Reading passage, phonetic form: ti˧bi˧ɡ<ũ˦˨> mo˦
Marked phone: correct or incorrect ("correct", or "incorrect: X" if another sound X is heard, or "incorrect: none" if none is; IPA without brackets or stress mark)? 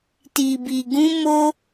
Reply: incorrect: ũ˦